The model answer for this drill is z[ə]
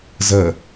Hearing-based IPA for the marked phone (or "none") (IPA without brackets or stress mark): ə